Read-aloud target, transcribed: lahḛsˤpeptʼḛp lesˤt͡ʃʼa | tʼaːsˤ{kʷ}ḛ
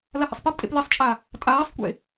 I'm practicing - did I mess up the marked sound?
no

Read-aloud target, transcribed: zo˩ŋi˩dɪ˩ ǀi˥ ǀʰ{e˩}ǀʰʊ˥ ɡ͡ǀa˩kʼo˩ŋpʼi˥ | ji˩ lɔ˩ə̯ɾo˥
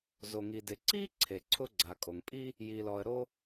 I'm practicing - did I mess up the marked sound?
no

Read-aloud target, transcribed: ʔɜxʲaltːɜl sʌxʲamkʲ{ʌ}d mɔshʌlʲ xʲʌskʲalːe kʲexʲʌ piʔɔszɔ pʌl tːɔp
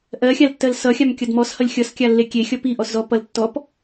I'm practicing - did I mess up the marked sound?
no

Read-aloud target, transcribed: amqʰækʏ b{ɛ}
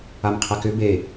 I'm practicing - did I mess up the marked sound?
yes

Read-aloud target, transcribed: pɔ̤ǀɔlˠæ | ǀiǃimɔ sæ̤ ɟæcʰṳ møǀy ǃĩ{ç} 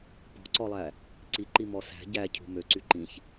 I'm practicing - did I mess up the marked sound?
no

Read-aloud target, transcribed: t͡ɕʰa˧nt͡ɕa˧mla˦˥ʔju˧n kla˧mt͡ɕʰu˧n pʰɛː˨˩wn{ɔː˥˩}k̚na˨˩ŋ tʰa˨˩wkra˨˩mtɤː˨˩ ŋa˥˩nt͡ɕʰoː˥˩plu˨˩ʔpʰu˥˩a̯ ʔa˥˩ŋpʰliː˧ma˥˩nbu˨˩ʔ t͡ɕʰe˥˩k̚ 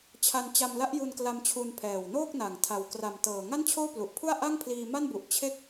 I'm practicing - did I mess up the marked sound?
yes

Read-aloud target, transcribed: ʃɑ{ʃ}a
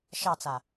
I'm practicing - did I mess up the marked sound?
yes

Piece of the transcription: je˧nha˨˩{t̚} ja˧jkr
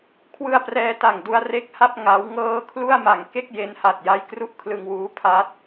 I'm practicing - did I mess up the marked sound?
no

